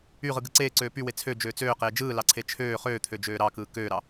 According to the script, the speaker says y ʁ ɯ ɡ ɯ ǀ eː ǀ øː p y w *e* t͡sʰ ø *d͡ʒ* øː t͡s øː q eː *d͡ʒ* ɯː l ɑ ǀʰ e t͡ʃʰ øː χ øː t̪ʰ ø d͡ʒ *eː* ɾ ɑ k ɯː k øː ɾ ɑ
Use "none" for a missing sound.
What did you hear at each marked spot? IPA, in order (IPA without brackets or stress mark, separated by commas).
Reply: e, d͡ʒ, d͡ʒ, øː